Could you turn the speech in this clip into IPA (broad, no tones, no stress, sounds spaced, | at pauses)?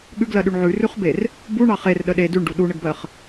ɠ ʉ ɡ l ɜ ɗ ʉ ɳ ʕ ʉ r ʉ χ b e r | b u ɳ ɑ χ e r ɗ ə ɗ e d ʉ ɳ ɖ u ɗ u ɳ ə ɡ b ɜ χ